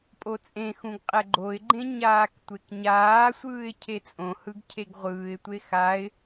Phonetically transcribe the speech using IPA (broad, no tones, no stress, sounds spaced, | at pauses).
pʼ o t͡sʼ ẽ x ũ ɡ qʼ ɛ ɡ͡ǃ o ɪ̯ ɡ͡ǃ ẽ ɲ aː k tʷ e k ɲ aː sʷ ɯː ɪ̯ cʰ e t͡sʼ õ h ɯ ɡ cʰ e ɡ ʁʷ ɯː ɪ̯ tʷ e x a ɪ̯